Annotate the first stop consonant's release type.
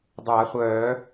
plain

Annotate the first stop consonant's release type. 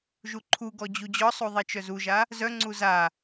click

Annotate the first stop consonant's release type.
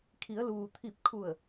aspirated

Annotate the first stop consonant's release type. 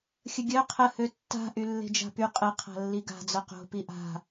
plain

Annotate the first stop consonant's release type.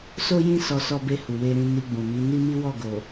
plain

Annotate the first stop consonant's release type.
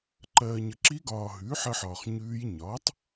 click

